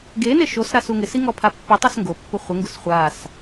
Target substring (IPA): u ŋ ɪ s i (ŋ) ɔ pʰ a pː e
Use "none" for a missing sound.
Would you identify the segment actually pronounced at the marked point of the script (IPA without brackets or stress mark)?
ŋ